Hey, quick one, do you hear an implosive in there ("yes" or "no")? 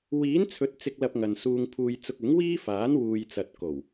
no